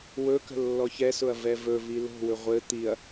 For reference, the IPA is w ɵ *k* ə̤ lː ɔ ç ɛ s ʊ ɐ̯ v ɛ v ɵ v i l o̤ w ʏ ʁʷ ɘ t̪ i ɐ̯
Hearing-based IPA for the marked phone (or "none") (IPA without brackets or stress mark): k